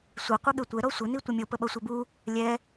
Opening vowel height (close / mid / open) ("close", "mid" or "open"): mid